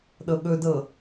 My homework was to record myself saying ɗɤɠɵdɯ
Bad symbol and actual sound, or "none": ɯ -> ɤ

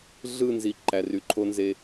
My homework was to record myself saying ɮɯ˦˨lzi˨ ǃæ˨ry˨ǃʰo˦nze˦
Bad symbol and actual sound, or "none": l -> n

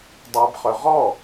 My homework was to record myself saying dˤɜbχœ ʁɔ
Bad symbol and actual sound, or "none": none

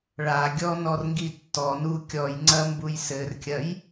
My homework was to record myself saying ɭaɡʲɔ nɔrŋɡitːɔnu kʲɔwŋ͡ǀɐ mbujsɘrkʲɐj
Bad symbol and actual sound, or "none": w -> j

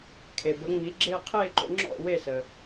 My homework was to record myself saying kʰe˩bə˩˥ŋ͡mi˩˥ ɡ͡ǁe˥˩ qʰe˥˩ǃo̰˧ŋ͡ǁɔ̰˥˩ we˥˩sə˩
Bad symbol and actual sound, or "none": none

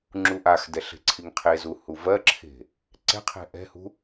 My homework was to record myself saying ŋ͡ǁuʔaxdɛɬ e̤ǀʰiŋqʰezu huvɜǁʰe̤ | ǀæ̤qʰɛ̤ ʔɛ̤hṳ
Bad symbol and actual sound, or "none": æ̤ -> ɛ̤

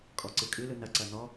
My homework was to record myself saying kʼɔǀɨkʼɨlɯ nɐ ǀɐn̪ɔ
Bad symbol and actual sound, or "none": none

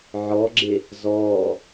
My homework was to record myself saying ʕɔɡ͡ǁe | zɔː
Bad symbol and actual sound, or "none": none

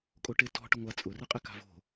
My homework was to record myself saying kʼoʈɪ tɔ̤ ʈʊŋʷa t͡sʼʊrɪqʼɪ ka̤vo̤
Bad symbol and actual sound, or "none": none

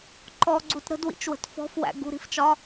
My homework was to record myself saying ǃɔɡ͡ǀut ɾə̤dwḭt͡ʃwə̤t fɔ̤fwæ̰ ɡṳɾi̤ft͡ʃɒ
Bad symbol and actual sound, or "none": none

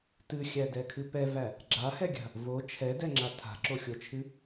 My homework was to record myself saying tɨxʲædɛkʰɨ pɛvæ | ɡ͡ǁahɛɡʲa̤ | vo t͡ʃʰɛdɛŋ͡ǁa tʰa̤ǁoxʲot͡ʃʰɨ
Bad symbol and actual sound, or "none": none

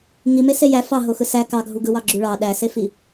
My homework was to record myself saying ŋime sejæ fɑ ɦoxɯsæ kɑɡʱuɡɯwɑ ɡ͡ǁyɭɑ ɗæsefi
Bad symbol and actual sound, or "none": none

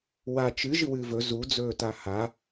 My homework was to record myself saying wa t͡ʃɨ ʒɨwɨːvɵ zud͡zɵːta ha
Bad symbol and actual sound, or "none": none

